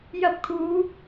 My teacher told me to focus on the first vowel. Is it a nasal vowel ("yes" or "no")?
no